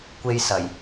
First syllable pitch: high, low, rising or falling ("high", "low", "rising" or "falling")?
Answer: high